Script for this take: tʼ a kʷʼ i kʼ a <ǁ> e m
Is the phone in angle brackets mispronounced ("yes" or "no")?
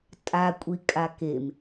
yes